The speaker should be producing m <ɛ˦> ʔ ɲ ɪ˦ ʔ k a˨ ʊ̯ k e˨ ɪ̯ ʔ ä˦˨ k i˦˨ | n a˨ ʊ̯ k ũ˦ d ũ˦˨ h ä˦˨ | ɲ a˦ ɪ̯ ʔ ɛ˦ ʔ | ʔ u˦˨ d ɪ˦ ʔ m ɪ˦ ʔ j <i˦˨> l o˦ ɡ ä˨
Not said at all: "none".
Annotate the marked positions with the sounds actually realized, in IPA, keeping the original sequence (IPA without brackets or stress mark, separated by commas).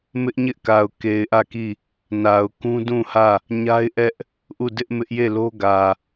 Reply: ɪ˦, e˦˨